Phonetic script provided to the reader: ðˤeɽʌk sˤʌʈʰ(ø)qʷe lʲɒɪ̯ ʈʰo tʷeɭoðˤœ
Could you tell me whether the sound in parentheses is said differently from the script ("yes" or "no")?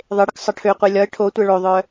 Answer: no